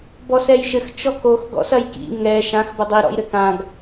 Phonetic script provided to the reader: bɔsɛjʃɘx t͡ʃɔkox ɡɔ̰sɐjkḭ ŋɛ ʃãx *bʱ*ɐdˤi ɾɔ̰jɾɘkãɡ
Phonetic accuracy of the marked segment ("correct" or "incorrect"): incorrect